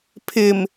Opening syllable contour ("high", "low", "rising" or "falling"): low